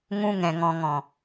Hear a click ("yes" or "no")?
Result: no